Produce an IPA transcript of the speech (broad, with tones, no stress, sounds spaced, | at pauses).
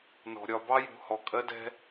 n ɔ̤˩ ɾʲ ɒ˨ b ɑ˦ j ṳ˩ h ɔ˩ kʼ ɜ˦ d ɛ̤˦